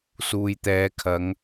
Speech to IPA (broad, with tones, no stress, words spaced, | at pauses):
suː˨jt̪ɛː˨˧kʰɐ˨˧ŋ